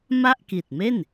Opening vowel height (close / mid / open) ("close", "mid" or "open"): open